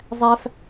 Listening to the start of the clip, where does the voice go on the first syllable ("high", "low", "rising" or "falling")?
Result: high